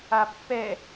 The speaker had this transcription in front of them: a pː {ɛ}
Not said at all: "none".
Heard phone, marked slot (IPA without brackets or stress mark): ɛ